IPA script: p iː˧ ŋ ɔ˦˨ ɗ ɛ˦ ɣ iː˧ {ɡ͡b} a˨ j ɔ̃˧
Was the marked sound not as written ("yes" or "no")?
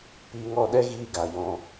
yes